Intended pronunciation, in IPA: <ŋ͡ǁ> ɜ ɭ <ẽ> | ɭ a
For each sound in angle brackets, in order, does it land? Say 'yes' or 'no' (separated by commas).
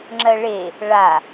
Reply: yes, no